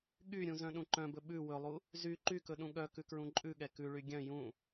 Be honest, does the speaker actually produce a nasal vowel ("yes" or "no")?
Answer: yes